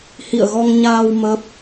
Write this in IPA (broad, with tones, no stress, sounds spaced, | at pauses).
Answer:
h ḭ˧˨ ə̯ ɣ ɔ˧ ŋ ɲ aː˧ w m ə˦˥ p̚